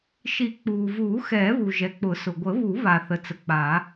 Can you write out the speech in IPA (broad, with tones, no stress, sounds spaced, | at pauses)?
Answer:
ʃ i˨˩˦ k͡p uː˩ v uː˨˩˦ x ɛː˨˩˦ β u˩ ʒ ɛ˩ k͡p ʊ˨˩˦ s ʊ˩ ɡʷ ə˨˩˦ β u˨˩˦ β a˩ θ ə˩ t͡s ə˩ k͡p a˨˩˦